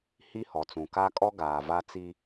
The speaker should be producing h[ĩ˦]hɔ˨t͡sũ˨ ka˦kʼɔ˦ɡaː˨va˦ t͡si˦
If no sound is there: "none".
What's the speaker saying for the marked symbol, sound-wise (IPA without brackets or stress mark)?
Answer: i˦